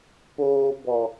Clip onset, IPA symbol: p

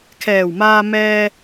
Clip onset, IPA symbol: kʰ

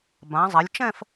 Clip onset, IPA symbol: b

